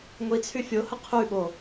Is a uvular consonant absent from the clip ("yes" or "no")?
no